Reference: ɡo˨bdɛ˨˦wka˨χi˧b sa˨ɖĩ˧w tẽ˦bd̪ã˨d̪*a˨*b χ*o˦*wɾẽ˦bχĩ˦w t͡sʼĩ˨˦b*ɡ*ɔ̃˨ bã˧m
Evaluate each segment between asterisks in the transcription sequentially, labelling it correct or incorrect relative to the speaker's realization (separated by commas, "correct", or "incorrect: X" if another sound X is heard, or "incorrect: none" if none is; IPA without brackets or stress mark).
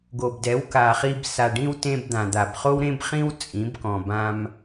correct, correct, incorrect: k